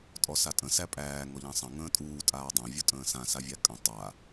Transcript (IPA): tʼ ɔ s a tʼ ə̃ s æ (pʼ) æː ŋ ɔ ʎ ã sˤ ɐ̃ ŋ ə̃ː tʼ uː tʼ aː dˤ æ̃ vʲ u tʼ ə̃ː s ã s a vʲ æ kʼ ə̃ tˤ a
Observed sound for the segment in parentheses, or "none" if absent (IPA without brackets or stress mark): pʼ